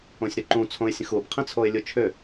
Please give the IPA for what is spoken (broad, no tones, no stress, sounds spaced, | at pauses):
õ sʲ ɾ ʏ ǃ ũ t͡sʰ õ ɪ̯ sʲ ə̃ x u b qʰ ĩ t͡sʰ o ɪ̯ lʲ u t͡ʃʰ ʏ